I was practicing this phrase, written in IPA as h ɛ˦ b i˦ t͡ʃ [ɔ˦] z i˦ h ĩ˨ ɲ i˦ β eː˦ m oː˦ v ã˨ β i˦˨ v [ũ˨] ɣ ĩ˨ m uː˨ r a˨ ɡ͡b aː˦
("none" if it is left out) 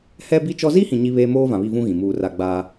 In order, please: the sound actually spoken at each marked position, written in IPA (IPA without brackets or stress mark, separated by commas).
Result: ɔ˦, ũ˦